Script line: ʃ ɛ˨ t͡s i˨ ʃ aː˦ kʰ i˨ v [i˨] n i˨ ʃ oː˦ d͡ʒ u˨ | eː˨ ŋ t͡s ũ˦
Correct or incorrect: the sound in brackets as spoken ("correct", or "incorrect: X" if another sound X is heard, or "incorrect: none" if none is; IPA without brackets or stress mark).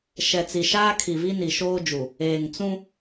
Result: incorrect: i˦